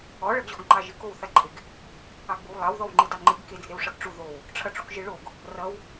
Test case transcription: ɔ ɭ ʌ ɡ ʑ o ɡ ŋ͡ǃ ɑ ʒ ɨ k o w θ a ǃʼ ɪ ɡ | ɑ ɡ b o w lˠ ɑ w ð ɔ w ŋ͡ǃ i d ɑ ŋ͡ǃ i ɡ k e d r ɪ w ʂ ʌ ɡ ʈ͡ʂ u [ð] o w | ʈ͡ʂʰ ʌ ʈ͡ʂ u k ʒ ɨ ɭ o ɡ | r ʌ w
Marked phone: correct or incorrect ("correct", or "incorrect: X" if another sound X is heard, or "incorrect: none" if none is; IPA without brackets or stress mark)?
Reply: correct